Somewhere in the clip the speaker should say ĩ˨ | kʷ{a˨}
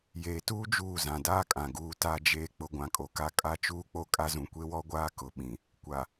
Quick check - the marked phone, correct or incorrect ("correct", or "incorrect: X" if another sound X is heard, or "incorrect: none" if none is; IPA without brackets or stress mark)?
correct